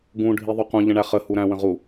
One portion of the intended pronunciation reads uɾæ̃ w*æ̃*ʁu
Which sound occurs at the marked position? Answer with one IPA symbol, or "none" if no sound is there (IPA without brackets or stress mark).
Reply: ə̃